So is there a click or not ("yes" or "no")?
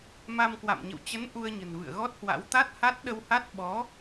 no